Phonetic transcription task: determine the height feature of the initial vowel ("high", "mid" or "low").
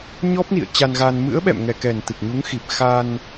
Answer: mid